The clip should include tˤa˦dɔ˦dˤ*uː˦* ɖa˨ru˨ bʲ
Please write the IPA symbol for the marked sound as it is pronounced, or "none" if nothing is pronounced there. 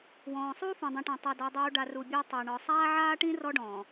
uː˦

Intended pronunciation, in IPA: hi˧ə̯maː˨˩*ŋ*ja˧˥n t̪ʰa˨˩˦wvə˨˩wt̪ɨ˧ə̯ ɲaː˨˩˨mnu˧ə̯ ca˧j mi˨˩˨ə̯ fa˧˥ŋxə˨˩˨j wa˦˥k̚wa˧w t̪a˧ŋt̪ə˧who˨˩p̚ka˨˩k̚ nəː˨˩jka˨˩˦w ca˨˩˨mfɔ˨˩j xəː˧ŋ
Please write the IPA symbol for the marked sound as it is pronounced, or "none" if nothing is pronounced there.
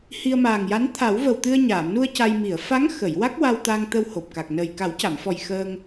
ŋ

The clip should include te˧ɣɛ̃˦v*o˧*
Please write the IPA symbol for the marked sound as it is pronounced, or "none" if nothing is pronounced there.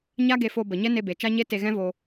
o˧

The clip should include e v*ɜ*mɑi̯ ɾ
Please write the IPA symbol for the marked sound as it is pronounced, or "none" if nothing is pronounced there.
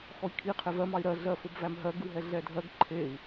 ɜ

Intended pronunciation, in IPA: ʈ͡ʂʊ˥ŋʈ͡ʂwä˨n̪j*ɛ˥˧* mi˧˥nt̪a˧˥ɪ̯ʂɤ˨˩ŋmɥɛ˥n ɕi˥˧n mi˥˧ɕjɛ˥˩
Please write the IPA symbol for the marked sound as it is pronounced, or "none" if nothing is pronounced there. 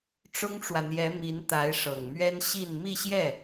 ɛ˧˥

